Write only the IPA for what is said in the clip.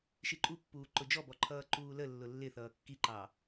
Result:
ʃ i ǃʼ u pː uː ǃ ʊ d͡ʒ ɔ b ɔ ǃʰ ʌː ǃ uː l ə lː ʊ lː ɪ θ ʌː kː i ǃ ɑ

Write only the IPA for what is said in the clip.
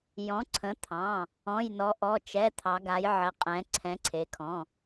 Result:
j ɔ̃˩˧ ǀʰ ə̃˩˧ t̪ʰ ɑ̃˩˧˩ | ɔ̃˩˧˩ j n ɔ˩˧ ʔ ɔ˩˧˩ t͡ʃ ɛ˩˧˩ t̪ʰ ɑ˩˧ ɡ a˩˧ j ʕ ə˩˧ qʼ ɛ̃˩˧ ǀʰ ɛ̃˩˧ ǀʰ e˩˧ kʰ ɔ̃˩˧˩

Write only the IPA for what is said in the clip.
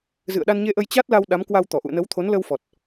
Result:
z ɨ̰˧˨ ə̯ ɗ a˧ n ɲ e˧ ʔ ə˧ j t͡ɕ a˦˥ t̚ l a˧ w ɗ a˨˦ m k w a˧ w t̪ ɔ˧˩ ʔ ṵ˧˨ ə̯ n ə˨˦ w t̪ʰ o˨˦ n l ə˧ w f ɔ˨˩ t̚

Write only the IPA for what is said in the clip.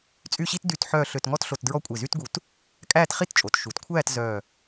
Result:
t͡sʼ y˥˧ ɕ i˥ t d y˥˧ t ħ œː˥˧ ɬ ø˧ t ŋ ɔ˥ t ɬ o˧ t d ɹ ɔ˥˧ kʷʼ e˧˩ z y˥ t ɡ u˧ t | kʼ æː˥˧ t χ i˥˧ t t͡ʃʼ o˩˧ t ʃ u˩˧ t kʷʰ æː˥˧ t z œː˧˩

